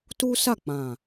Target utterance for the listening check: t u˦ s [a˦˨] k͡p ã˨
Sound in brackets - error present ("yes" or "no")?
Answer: no